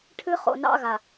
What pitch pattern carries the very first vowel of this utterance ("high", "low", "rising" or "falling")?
high